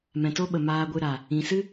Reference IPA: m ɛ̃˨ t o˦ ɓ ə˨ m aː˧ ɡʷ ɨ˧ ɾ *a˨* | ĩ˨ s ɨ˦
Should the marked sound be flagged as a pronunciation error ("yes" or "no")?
no